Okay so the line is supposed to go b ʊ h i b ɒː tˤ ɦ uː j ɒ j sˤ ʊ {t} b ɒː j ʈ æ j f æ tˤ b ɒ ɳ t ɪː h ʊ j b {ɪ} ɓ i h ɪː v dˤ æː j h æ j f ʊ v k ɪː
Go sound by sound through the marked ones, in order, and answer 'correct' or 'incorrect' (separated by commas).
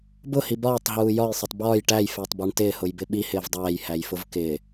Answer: incorrect, correct